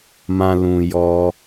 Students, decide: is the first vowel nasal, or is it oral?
nasal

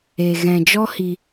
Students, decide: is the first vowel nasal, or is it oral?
oral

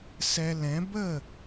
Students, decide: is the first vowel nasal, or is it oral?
oral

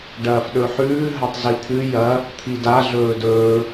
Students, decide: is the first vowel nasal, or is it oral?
oral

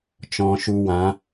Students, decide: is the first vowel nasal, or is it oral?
nasal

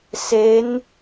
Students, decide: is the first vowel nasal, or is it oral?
oral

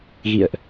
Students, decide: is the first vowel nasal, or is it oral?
oral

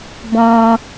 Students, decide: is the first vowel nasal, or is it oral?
nasal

